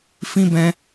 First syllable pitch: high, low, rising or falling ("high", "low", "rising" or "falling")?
high